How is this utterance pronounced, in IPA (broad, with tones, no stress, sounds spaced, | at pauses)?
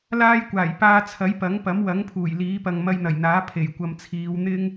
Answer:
l aː˥ j kʷ aː˨˩ j p aː˧ t͡sʰ ɐ˨˥ j p ɐ˨˥ ŋ p ɐ˨˥ m w ɐ˨˥ ŋ pʰ uː˨˩ j l iː˨˥ p ɐ˨ ŋ m ɐ˧ j n̪ ɐ˨˩ j n̪ aː˨˥ pʰ e˨˩ j kʷ ɐ˨ m t͡sʰ iː˨˧ w n̪ ɪ˥ ŋ